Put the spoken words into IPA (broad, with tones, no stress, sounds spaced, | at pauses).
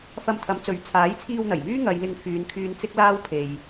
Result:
f ɐ˧ m t̪ʰ ɐ˨˥ m t͡s ɵ˨˥ ɥ t͡sʰ aː˨˥ j t͡sʰ iː˧ w n̪ ɐ˨˩ j m yː˥ ŋ ɐ˨˧ j l ɪ˧ ŋ f yː˨˧ n kʰ yː˧ n t͡s ɪ˥ k̚ l aː˥ w pʰ e˨ j